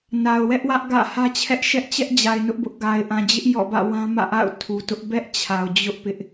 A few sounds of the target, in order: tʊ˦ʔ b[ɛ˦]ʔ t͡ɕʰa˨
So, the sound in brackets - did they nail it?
yes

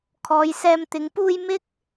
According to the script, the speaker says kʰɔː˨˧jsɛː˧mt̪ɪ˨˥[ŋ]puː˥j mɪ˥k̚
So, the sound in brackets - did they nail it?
yes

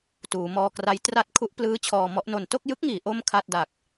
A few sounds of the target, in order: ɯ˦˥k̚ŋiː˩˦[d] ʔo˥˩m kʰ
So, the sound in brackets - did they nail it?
no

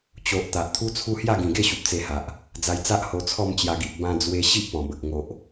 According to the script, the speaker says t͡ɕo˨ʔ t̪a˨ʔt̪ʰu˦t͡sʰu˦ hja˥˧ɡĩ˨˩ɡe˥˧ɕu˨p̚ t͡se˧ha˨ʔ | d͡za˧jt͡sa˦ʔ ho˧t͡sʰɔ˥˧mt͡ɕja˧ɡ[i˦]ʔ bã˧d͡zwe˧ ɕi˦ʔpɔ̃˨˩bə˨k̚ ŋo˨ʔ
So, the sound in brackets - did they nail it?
no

